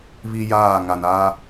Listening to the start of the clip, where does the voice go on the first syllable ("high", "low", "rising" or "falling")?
high